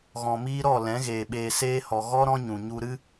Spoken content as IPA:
ɣɔ̃˨miː˦ ɾɔ˦˨lɛ̃˨˦ɣeː˨ ɓeː˨seː˧hɔ˨ ɣɔ˦ ɾɔ̃˦ɲũ˨ ɲu˧ɾɨ˦

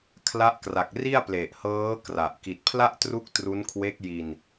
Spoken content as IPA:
kʰla˦˥ʔkra˨˩k̚ri˥˩a̯ple˨˩ʔ hɤː˦˥ kra˨˩ʔ ki˨˩t̚pʰla˥˩ʔtru˦˥k̚ tru˦˥nkʰwe˦˥k̚ji˧n

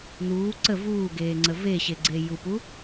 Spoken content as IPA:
n̪uː ǀə vuːɡeːŋ͡ǀə veɕeɡ͡ǀe jupu

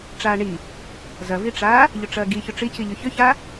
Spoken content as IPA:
ʈ͡ʂaːɳi | zɐviʈ͡ʂaː | ʎʊʈ͡ʂɐːɡi çʊʈ͡ʂiciʎʏ çʏça

